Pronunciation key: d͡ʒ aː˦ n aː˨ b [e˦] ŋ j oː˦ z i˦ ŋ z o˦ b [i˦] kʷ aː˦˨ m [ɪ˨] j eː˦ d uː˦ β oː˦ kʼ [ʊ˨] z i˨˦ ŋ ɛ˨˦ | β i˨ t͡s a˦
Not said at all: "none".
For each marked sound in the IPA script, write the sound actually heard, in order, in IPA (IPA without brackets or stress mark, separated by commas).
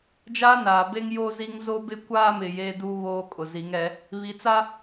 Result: e˦, ɪ˦, ɪ˨, ʊ˨